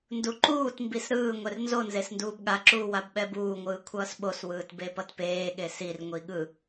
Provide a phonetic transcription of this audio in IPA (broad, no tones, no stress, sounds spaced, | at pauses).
n d u ǃ uː t m b i s ɾ ɯː ŋʷ ɛ r n z o n z e s n d uː b ɠ a ǁ uː w a b ɓ ɛ b uː ŋʷ ɯː kʷʰ ʌː s ɓ o s w ɯː t b e p ʌ t p eː ɠ e s i r ŋʷ i ɠ ɯ